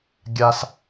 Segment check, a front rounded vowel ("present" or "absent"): absent